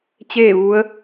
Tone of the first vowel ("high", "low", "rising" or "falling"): falling